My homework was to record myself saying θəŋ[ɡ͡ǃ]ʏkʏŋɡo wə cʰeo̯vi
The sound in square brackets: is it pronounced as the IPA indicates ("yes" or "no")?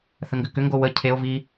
no